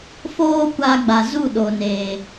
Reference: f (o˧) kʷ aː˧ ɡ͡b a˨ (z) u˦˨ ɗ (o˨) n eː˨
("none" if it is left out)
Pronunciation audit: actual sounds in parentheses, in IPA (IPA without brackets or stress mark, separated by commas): oː˧, z, o˨